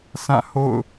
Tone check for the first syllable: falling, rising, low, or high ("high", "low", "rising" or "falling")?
falling